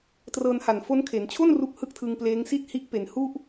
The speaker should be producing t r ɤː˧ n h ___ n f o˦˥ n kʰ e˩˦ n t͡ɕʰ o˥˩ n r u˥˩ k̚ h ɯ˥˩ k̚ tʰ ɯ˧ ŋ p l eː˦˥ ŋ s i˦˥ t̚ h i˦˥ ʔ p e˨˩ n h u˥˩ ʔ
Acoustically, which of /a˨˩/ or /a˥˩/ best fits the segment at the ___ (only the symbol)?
a˨˩